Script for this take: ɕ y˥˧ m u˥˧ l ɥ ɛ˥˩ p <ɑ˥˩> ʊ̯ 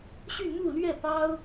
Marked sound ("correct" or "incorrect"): incorrect